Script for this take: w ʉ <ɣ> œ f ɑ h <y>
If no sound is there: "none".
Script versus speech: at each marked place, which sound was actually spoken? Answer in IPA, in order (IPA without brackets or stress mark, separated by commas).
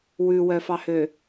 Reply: w, ø